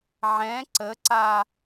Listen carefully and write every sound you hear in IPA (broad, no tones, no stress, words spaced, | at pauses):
ʕɛ̃ ǀəǀa